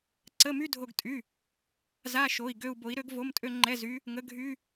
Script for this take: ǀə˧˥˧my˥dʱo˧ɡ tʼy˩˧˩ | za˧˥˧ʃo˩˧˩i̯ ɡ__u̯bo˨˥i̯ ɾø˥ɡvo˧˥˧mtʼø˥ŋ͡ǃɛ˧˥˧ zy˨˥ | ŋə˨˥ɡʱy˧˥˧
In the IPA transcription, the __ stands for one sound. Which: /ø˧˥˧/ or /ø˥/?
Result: ø˧˥˧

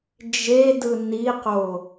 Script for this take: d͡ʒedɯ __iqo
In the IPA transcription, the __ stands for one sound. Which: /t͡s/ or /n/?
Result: n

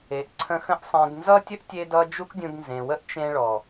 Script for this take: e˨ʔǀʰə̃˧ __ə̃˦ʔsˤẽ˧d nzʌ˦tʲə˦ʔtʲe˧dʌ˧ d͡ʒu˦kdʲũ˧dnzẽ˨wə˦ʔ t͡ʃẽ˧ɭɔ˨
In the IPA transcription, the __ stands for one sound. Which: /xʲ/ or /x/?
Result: x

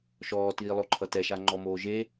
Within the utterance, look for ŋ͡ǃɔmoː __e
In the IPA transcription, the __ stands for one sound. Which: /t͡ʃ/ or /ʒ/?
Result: ʒ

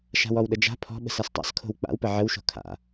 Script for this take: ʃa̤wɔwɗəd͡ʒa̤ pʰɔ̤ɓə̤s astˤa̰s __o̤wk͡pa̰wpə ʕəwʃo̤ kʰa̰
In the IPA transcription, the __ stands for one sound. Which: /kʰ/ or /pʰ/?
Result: kʰ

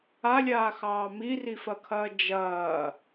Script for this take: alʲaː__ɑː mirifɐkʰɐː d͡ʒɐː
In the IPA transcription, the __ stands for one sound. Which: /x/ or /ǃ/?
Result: x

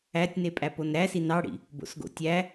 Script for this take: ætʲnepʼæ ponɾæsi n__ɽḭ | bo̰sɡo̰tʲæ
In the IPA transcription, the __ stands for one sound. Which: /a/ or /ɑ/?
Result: ɑ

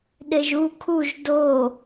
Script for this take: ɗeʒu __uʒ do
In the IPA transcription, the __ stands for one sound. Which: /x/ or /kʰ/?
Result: kʰ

